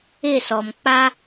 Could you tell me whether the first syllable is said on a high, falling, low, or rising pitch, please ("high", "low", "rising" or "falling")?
falling